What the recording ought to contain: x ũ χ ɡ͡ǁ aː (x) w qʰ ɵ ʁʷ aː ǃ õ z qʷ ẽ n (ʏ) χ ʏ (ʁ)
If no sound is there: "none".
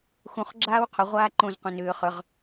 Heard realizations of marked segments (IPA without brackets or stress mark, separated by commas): none, ʏː, ʁ